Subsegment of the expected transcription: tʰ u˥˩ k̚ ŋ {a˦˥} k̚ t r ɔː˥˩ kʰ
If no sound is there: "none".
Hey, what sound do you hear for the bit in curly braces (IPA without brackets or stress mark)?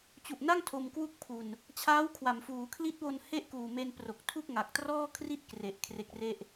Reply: a˨˩